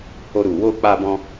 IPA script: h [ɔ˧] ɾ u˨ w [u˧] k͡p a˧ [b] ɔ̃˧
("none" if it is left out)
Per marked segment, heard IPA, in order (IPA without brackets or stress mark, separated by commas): o˧, o˧, b